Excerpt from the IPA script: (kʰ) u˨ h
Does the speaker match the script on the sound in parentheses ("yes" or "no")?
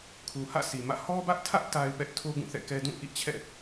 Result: yes